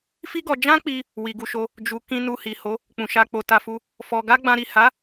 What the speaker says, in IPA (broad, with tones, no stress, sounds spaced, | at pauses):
f i˦ ɡ ɔ˧ d͡ʒ ã˦ k͡p i˧ | w i˨ ɡ u˧ ʃ o˧ | d͡ʒ u˨ k ĩ˧ n u˧ h i˨ h o˨˦ | k͡p ũ˨ ʃ a˧ k͡p o˧ t a˧ f u˧ | f ɔ˧ ɡ a˦ ɡ͡b ã˧ ɾ i˨ h a˨˦